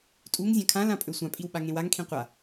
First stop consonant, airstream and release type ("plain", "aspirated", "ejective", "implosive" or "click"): ejective